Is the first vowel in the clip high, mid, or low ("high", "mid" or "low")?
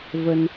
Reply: mid